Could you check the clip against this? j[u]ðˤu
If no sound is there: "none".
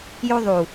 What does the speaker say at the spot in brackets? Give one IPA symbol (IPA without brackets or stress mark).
u